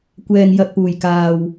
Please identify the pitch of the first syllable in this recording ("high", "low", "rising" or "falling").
low